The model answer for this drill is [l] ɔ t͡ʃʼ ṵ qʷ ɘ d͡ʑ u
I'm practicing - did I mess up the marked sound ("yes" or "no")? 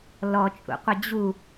no